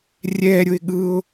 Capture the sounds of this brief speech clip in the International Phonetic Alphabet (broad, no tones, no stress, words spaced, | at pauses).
rʲɛɾʲʊɪ̯ ɠɯʊ̯